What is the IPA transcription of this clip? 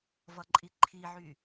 v ʌ ǃʼ i ǃʰ i ʕ y

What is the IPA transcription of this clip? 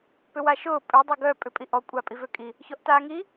p ʏ w a ʃ ʊː pʼ ø dˤ e ɡ œ pʼ ʏ pʼ i ʔ ɔ kʷʼ a pʼ i v ø kʼ i | ç ɔ ʔ t aː ŋ i

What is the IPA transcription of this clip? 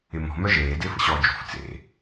ɪ m ɔ̤ m œ ʒ eː d ɪː f ə̰ ɕ ɔː d͡ʒ ṳ f t͡s ḛ

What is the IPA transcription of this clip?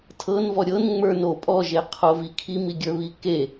tʰ ɤ n v ɔ ɾʲ ɤ n ŋ͡m ə˞ n o pʼ ɔ ʒ e qʰ o v i kʰ i m i ɡʲ ə˞ β i k e

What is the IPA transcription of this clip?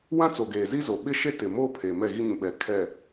w ã˦ t͡s o˨ ɡ eː˨ z i˦ z o˨ ɓ ɪ˦ ʃ e˦ t ɪ˨ m oː˦ pʰ eː˨ m ɛ˦˨ ɣ i˦ ɲ ũ˨ ɓ ɛ˨ kʰ ɛ˨

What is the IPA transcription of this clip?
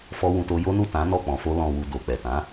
f ɔ˦ w ũ˧ t o˦ j o˦ n u˦˨ t ã˨˦ n ɔ˦˨ k͡p ɔ̃˧ f o˦ l ɔ̃˧ w u˧ d o˨ k͡p ɛ˨ t ã˨˦

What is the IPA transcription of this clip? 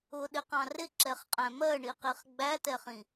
ʊ ɗ ɪ q ɑ̃ r ɪ ǁ ɛ χ qʼ æ̃ m ɜ ɳ i q i χ ɡ͡b æ t ɛ χ ĩ

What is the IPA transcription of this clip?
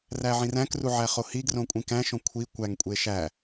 r æ ʕ ĩ r æ̃ k r u ʕ æ χ o h i ɡ r õ kʷʼ ĩ k æ̃ ʃ õ kʷʰ i kʷ æ ŋ kʷʼ e ʃ æ

